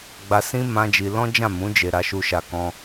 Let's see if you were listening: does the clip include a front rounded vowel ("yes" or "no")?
no